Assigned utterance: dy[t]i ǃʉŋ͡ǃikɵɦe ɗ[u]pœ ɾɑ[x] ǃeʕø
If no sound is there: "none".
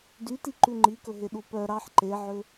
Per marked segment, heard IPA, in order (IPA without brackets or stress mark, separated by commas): t, u, ħ